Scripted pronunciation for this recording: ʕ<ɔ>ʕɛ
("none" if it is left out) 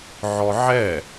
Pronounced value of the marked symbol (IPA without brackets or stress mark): ɔ